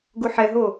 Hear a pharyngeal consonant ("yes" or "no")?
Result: yes